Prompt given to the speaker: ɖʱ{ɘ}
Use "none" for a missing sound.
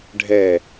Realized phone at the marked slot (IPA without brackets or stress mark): ɛ